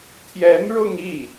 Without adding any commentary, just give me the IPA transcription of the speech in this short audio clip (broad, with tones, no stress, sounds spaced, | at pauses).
t̪ʰ j ɛ˧˥ n ɻ ʊ˥˧ ŋ i˥˩